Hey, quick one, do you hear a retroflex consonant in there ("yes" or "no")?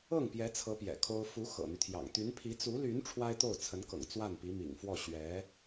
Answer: yes